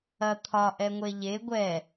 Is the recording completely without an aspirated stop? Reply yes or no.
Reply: no